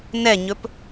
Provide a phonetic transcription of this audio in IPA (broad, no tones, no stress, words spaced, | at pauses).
nɛɲɵp